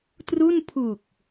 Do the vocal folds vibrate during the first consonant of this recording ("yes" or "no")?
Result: no